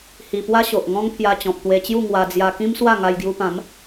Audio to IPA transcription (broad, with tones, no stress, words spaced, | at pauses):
hi˧ pwa˦ ɕo˨ʔŋɔ̃˦ŋ pʰja˧t͡ɕɔ̃˨p̚t̪we˧t͡ɕju˥˧ ŋwa˧ d͡zja˧kĩ˦mswa˥˧ ŋa˧jɡju˧pã˨˦m